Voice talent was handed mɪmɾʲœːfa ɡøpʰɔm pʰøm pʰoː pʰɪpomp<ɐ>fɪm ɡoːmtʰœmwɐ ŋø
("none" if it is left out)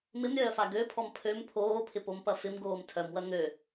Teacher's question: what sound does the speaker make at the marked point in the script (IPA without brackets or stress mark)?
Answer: ɐ